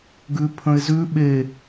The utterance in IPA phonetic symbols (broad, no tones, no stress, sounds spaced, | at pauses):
ɡ ʉ pʰ ə̃ ɪ̯ z ʉ ɓ e